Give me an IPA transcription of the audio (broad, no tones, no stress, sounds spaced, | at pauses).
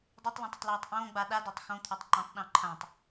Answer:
dˤ y tˤ l ɔ̃ tˤ ʊ tˤ l ɔː tˤ ʔ õː ɡ͡b a ɗ a d ɔ tˤ x õ t̪ʰ a tˤ ǃ ɔ̃ tˤ ɗ ɔ̃ ǃʰ ã tˤ